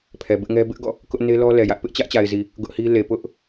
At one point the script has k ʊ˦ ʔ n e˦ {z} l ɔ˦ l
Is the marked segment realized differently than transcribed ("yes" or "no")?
yes